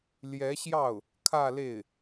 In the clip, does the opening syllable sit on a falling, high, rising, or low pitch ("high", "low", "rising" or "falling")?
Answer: rising